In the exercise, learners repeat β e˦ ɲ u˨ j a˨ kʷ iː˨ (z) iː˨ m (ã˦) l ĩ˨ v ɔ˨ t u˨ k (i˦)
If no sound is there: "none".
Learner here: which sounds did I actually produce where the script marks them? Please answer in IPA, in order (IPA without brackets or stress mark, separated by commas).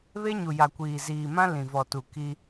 z, ã˦, i˦